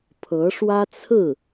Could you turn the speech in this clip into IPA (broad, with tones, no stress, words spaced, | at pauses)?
pʰɤ˧˥ʂwä˥t͡sʰɹ̩˥˩